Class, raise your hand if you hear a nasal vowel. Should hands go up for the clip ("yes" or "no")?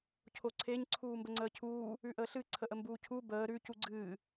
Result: no